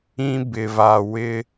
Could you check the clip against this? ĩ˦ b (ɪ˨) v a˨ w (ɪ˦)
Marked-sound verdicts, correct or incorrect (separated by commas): correct, correct